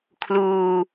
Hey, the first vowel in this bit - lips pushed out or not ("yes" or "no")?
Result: yes